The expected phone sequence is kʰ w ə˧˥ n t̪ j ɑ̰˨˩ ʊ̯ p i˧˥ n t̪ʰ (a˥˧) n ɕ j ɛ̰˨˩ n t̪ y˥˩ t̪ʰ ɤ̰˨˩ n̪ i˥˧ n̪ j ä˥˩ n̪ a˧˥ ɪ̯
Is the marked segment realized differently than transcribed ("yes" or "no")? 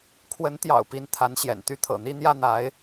yes